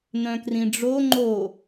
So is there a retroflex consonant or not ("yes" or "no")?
yes